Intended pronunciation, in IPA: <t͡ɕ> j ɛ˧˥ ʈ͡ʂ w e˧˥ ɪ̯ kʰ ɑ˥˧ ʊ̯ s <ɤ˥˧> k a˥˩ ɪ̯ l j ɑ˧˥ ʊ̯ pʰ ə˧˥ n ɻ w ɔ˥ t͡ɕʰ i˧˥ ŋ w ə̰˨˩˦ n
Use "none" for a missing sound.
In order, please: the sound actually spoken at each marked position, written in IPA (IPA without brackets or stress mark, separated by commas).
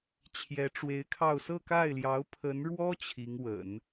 t͡ɕʰ, ɤ˥˧